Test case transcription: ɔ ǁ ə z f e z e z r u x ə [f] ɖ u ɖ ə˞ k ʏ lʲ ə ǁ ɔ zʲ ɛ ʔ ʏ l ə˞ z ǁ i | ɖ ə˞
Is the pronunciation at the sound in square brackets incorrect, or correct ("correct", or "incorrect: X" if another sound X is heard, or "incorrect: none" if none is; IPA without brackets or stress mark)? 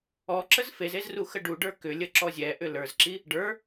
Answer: incorrect: none